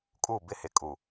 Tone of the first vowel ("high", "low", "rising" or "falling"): falling